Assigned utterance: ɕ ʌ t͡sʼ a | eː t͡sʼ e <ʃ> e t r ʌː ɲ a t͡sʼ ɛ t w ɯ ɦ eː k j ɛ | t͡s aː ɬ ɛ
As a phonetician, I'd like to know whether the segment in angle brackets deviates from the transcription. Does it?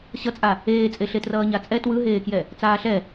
yes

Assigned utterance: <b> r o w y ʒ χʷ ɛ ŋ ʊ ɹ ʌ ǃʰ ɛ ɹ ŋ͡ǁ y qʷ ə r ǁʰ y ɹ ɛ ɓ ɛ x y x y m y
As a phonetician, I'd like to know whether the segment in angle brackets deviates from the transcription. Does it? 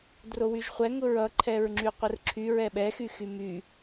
yes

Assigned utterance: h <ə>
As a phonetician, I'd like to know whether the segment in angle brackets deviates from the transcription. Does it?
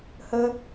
no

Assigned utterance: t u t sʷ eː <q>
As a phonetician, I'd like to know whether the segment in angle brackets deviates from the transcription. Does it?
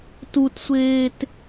yes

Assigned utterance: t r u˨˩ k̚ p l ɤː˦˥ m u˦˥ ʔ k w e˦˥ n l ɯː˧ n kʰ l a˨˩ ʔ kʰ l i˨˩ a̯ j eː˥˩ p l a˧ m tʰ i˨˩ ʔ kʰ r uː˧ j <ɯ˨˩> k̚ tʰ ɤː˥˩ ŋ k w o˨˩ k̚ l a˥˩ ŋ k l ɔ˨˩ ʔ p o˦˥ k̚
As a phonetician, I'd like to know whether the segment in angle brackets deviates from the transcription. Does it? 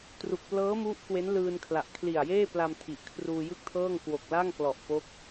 yes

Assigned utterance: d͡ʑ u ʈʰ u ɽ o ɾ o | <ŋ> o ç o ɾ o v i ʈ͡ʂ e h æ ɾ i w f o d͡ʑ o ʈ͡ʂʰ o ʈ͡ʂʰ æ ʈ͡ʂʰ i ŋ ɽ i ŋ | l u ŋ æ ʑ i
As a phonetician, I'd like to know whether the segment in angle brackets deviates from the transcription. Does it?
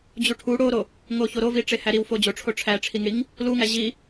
no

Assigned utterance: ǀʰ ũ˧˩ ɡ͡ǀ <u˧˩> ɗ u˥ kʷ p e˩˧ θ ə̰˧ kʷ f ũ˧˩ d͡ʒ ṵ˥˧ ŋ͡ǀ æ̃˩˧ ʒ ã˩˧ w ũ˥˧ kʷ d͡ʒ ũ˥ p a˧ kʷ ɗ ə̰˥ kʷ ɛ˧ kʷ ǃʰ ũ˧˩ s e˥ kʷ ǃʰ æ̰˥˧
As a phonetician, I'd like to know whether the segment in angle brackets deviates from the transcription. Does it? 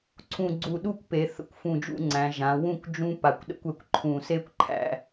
no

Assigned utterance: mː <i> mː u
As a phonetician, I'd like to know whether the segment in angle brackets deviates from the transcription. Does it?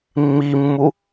no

